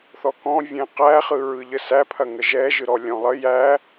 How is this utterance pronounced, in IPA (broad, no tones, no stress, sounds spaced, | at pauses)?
θ ɔ k ɔ̃ vʲ ɛ̃ q æ χ ɯ ɹ ɯ ʎ ə s æ pʰ ɐ ŋ ə ʒ ɛ ʒ ɯ ɾ ɔ lʲ ɔ̃ lˠ ə j æ